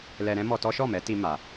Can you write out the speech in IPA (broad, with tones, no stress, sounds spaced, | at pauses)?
l ɛ˧ ɾ ɛ̃˦ m ɔ˧ t ɔ˦ ʃ ɔ˦˨ m ɛ˨˦ t i˧ m a˧